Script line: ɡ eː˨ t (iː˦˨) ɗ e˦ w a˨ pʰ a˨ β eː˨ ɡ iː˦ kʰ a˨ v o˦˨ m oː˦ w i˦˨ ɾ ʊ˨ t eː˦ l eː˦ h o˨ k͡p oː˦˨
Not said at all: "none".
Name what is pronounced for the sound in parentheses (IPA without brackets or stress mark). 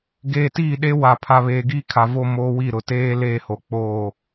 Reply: iː˦˨